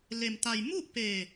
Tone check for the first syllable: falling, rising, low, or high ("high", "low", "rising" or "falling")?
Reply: low